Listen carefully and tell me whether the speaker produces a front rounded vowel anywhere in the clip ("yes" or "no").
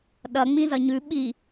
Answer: no